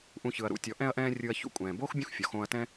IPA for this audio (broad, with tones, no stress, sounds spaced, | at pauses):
ʔ ũ˧ ç ɯ˨ ɐ̯ ɾ ṵ˨˦ tʲ ɔ˨˦ ʔ ɛ̃˦ ɐ̯ ʔ ɛ̃ː˦ rʲ ɯ˧ ɐ̯ ç ṵ˧ kʷʼ ɛ̃ː˨ b oː˦ x bʲ ũ˦ x fʲ ɔ˨ x õː˧ ɐ̯ t ɛ̃˦